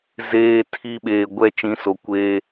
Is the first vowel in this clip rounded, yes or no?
no